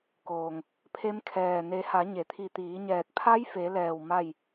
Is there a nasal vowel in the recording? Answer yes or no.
no